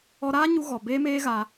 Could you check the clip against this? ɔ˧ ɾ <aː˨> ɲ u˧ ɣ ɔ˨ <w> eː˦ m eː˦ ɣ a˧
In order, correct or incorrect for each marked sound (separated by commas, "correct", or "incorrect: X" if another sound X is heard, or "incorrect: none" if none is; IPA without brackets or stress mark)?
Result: incorrect: aː˦, incorrect: b